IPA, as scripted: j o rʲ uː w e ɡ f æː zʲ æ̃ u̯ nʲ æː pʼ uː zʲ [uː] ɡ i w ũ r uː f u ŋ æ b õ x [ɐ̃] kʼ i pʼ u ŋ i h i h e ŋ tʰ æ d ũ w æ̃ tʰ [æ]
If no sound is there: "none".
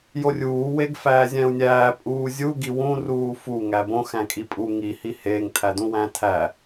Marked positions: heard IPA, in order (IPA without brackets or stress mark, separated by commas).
u, æ̃, æ